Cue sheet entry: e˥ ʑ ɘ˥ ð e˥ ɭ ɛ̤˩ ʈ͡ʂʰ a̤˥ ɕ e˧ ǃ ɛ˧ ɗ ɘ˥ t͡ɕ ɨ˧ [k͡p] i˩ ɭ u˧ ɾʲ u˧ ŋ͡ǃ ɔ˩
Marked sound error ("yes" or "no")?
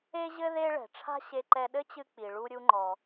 no